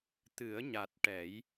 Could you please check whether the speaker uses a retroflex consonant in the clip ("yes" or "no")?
yes